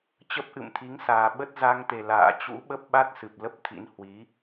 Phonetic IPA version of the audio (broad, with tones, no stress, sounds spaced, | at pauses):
t͡ɕ ə˦˥ p̚ ʔ ɨ̰˧˨ m t̪ʰ i˨˦ ŋ s aː˨˩ ɓ ə˦˥ t̚ z a˧ ŋ t̪ e˨˩ l a̰ː˧˨ t͡ɕ ṵ˧˥ ɓ ə˦˥ p̚ ɓ a˦˥ t̚ s ɨ˨˩ p̚ l ə˦˥ p̚ t̪ʰ ḭ˧˥ n h w i˨˦